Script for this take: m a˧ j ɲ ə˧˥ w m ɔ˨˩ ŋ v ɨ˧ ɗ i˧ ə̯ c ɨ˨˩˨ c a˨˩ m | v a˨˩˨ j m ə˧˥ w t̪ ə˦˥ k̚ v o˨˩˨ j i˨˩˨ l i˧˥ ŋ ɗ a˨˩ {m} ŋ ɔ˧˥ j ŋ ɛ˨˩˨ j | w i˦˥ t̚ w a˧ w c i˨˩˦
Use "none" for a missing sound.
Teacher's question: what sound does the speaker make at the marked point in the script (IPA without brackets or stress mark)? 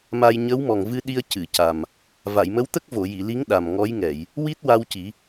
m